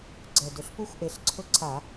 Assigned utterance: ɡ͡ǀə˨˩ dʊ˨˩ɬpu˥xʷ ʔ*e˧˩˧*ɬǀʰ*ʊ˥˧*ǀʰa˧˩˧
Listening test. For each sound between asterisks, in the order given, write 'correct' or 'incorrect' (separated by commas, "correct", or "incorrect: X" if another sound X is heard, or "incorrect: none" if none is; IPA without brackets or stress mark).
incorrect: e˨˦, correct